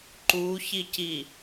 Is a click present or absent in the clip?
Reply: present